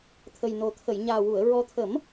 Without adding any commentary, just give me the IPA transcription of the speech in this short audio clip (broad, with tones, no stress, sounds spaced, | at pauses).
t̪ʰ ə˨˩ j n o˨˩ t̪ʰ ə˨˩˨ j ɲ aː˨˩ w u˨˩˨ ə̯ ɹ ɔ˧ t̪ʰ ə˨˩˦ m